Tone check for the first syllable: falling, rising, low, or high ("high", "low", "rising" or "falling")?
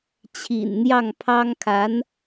low